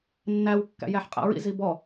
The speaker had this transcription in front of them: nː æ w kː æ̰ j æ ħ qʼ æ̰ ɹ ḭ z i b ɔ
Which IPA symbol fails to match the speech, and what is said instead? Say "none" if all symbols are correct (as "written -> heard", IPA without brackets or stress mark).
none